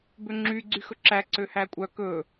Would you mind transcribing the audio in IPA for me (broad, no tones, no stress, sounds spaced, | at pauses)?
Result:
b ø ŋ͡ǁ y ɡ͡ǀ y x ɵ ǁ æ ǀ ø h æ kʷʼ œ k ɵ